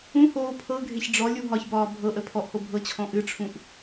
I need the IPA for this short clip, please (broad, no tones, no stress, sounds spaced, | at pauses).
ũ h oː pʰ ɤ ɡʱ e ç ɖ͡ʐ ɔ lʲ u ɦ ɒ ç b ɒː bʱ ɤ ʔ ə pʰ ɔ ʔ h o bʱ ɤ t͡ɕʰ ɔ̃ ʔ ɨ ʈ͡ʂʰ ũ ʔ